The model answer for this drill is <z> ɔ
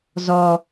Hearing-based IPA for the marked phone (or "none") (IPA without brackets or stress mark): z